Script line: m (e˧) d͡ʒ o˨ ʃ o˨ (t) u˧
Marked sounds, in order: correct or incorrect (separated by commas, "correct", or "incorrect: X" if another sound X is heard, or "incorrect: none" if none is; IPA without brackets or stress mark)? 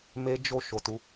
correct, correct